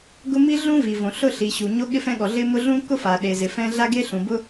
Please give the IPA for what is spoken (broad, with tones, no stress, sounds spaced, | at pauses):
ɡ ʊ˥ m i˥ ɮ ũ˥ v i˩ v õ˩ ɬ ʊ˥ ɬ i˩ ɕ u˩ ɲ o˥ ɠ ɪ˥ f ɛ̃˥ ɠ ɔ˩ ɮ ɪ˥ m ʊ˥ ɮ ũ˥ k ʊ˥ f a˩ ɗ e˩ z ɪ˩ f ɛ̃˥ ɮ a˥ ɡ e˥ ɬ ũ˩ b ʊ˥